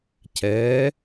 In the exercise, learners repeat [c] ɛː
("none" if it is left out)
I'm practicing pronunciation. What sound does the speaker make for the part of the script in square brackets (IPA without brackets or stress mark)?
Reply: c